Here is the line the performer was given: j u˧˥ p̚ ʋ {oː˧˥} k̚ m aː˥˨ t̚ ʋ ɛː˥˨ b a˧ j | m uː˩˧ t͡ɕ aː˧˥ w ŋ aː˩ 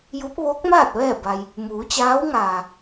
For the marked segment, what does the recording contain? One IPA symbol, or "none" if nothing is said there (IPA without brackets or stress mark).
oː˧˥